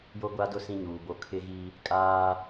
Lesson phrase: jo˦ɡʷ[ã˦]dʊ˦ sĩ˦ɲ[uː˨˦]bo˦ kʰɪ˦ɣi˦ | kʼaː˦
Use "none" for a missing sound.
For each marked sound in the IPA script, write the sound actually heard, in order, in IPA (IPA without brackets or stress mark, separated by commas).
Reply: a˦, uː˨